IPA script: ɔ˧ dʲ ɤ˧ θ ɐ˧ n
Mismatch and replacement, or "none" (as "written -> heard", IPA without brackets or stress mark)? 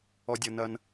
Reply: θ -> n